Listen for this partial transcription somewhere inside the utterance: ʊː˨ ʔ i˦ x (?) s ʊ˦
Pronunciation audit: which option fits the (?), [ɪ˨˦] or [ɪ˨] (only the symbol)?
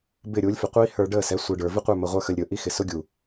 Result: ɪ˨